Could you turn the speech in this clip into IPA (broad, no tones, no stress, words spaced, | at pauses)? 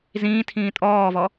zĩː tʰĩːtʼɔːvɔ